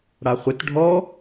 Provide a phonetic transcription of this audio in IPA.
ɽ a χʷ ɪ t ɖʱ ɔ

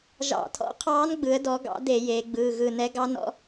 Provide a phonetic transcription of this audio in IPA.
ʒ ɑ̰˧˩˧ tʰ ɔ̰˧˥ qʰ ɑː˧˥ n ɡ͡b ɯ˩˧ ə̯ d ɔ˩˧ ɡ ɑ̰˩˧ d e˧˩˧ j eː˩˧ ɡ͡b ɯː˩˧˩ ɣ ɯ˧˩ n ɛ˧˥ ɡ ɑ˧˥ n ɔ̰˧˥

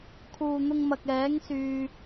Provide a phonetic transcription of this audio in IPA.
kʰ uː˨ n̪ ʊ˧ ŋ m ɐ˨ k̚ ɛː˨˥ ŋ s yː˨

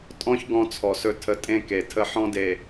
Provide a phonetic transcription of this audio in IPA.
tʼ ɔ̃˦ ç ɡ ɔ̃˦ t͡sʰ ɔ˨ s ɵ˦ tʰ ə˦ tʼ ẽ˦ k e˨ tʰ ə˦ ħ ɔ̃˦ d e˨

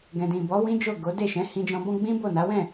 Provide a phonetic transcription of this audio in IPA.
ɡ ɛ̃˨ d ĩ˨ b ɔ˨˦ w ĩ˦ d͡ʒ o˦˨ ɡ o˨˦ d e˦˨ ʃ ɛ̃˨˦ h ĩ˧ d͡ʒ ɔ̃˧ b ɔ̃˦ ɡ͡b ĩ˦ b o˦˨ n a˨˦ w ɛ̃˦˨

